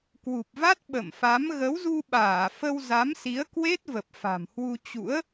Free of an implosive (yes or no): no